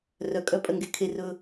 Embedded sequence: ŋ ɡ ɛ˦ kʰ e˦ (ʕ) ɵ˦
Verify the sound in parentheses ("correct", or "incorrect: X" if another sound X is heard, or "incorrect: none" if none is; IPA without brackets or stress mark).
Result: incorrect: r